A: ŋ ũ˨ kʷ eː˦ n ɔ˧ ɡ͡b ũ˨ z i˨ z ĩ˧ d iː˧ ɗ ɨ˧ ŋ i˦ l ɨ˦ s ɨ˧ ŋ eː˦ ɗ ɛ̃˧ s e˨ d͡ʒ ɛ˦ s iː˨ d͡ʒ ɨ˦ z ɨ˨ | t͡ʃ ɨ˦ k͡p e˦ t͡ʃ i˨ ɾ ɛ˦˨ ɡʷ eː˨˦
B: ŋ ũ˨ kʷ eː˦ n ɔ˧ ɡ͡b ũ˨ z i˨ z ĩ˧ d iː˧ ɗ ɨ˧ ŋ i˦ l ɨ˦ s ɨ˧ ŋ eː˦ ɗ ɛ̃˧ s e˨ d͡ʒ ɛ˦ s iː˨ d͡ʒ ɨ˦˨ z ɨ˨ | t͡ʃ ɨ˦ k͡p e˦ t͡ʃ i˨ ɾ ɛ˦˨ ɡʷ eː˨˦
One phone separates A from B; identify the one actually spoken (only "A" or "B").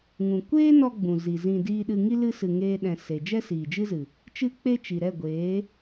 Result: A